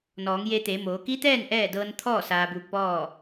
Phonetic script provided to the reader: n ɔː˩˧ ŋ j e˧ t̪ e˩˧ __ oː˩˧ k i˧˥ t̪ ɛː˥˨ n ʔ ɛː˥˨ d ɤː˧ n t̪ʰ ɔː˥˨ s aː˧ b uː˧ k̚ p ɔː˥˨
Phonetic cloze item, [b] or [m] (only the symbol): m